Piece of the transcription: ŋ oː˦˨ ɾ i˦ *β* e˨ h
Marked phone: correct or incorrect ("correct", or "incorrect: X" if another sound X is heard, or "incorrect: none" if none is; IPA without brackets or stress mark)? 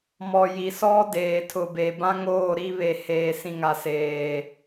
correct